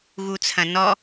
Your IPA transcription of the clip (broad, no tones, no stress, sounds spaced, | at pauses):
ɣ u t͡sʰ ɐ̃ n ɔ